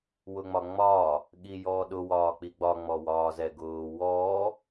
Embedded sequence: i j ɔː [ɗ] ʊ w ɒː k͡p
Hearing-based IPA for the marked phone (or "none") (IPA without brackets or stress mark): ɗ